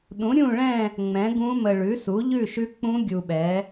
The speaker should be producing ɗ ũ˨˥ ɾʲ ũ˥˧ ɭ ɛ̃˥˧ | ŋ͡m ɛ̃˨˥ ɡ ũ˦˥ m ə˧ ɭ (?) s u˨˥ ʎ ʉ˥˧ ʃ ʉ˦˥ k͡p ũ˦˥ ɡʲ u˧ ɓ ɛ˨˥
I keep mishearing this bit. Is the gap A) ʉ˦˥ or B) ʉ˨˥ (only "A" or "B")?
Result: B